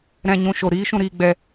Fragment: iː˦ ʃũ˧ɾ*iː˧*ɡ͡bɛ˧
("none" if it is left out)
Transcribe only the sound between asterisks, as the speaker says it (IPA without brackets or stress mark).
iː˧